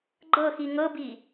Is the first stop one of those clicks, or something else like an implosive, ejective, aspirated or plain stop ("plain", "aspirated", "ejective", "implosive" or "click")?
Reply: click